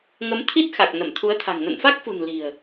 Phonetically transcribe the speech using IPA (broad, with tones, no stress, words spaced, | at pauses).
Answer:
ŋə˨˦m t̪ʰi˦˥t̚xa˨˩k̚ nə˧˩mt̪ʰu˨˦ə̯t̪ʰa̤˨˩ŋ nə̰˧˨nfa˦˥k̚fṳ˨˩n li̤˨˩ə̯